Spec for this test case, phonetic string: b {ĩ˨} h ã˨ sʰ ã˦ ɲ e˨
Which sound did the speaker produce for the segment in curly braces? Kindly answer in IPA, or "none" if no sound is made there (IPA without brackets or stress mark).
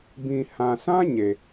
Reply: ĩ˨